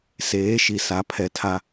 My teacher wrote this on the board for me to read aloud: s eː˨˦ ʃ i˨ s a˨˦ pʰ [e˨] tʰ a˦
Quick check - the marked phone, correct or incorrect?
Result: incorrect